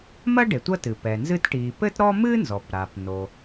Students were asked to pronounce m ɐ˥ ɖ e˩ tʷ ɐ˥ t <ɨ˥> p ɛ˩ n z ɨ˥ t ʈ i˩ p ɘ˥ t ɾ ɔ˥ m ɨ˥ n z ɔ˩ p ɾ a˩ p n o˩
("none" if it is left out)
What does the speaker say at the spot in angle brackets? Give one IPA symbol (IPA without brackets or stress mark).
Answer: ɨ˩